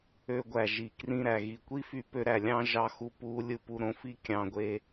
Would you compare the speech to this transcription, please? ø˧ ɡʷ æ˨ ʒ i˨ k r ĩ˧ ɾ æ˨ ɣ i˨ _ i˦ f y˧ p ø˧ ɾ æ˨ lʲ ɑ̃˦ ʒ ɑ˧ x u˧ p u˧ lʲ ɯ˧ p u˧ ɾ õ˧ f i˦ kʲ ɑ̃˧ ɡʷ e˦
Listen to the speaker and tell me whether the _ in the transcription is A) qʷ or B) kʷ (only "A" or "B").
B